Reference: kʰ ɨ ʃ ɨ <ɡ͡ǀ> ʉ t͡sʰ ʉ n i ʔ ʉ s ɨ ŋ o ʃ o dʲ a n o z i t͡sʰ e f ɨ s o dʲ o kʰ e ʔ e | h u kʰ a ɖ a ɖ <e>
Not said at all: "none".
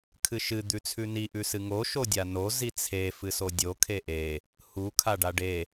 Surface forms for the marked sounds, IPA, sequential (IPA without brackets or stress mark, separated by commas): d̪, e